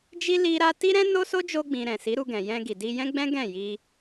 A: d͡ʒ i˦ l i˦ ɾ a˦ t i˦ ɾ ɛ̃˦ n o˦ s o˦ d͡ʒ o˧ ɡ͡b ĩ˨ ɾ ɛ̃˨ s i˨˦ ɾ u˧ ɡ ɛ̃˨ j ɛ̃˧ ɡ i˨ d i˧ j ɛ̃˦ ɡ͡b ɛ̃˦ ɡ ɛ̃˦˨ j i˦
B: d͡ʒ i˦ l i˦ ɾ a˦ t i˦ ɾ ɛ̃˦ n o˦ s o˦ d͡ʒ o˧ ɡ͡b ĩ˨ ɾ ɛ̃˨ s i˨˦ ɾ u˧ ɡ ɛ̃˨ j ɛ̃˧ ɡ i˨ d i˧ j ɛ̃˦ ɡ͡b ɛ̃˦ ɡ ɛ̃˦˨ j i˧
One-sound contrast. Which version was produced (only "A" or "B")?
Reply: B